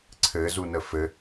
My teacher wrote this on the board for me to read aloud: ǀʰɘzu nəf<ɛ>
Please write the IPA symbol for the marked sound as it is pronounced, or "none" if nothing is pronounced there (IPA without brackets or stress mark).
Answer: ɘ